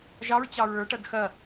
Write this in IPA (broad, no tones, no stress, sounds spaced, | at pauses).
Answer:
ʒ ɑ ɹ t͡ɕ ɑ ɹ ə˞ ʈ ɐ d x ɐ